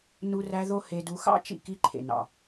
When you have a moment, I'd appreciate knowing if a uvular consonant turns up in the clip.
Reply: no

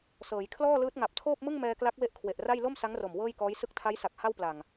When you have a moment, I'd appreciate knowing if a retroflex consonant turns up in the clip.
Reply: no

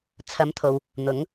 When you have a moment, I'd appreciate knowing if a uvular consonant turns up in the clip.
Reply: no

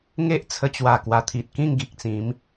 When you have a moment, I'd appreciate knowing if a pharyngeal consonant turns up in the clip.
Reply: no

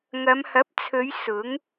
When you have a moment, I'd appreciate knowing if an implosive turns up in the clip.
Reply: no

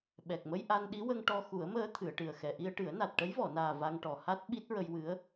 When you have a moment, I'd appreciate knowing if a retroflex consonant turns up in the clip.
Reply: yes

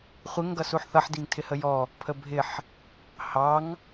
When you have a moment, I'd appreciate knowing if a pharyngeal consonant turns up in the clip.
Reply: yes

